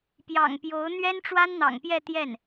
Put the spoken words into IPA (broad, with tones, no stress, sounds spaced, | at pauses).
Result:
p j ɑ̰˨˩ ŋ p j o˧˥ ʊ̯ n̪ ɥ ɛ˥ n ʈ͡ʂ w a˥ n n̪ ɑ̰˨˩ ŋ p j ɛ˥˧ t̪ j ɛ˥˩ n